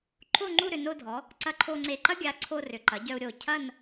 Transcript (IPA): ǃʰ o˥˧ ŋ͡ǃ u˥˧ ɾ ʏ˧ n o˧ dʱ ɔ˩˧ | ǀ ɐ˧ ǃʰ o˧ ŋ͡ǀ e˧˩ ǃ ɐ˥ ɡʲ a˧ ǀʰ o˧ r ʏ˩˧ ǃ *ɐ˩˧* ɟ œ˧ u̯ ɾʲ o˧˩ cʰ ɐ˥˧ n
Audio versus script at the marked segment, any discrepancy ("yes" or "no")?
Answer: no